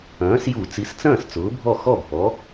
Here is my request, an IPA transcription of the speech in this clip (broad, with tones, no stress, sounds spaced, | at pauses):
ɐ̃ː˩˥ s j u˧˩˧ t͡s i˩˥ s t͡s ɐ̃ː˥˩ s t͡s ʊː˩˥ bʱ ɔ˥˩ x ɔ˥˩ bʱ ɔ˩˥